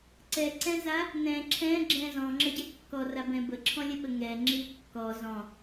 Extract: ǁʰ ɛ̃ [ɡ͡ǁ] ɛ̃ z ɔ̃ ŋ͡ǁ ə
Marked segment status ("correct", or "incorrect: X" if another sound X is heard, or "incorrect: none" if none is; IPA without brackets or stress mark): correct